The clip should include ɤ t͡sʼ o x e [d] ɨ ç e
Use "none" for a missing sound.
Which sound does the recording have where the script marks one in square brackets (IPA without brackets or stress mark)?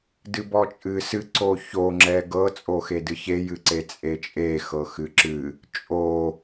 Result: d